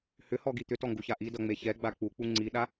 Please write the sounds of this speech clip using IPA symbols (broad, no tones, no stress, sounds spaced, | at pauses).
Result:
h ʏ h ɔ ɡ i t̪ ʏ t ɔ ŋ ɡ u ç a ʔ i d ʌ ŋ͡m e ç ɛ ɡ͡b a k͡p u k͡p u ŋ͡ǀ i ɗ a